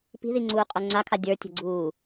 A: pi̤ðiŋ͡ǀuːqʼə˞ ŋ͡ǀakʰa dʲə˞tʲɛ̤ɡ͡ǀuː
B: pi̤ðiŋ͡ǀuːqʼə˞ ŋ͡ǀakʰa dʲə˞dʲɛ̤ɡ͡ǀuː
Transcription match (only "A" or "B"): A